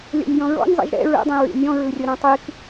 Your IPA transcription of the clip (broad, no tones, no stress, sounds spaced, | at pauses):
lʲ ɔ̰ nʲ j ɔ̃ ɹ ɔ̰ nʲ zˤ ḭ ʒ ɾ ɛ̰ ɹ ɛ̰ dˤ ĩ ɹ ḭ nʲ ɔ̃ ɹ ɯ rʲ ɤ ɾ ɔ̃ tˤ i k